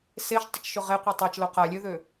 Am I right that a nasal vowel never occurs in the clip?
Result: yes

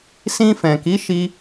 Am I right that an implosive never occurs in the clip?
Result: yes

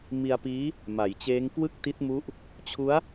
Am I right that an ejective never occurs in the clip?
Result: yes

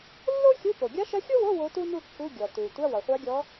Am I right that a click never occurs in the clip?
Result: yes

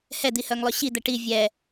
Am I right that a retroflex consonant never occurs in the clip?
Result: no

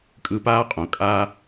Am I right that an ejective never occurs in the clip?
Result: no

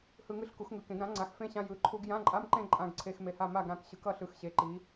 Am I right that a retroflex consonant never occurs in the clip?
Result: yes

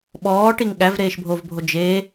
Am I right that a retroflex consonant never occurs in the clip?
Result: no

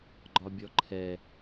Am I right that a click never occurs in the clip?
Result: no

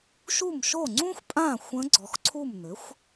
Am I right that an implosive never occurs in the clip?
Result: yes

